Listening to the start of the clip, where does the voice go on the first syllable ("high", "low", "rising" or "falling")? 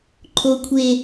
high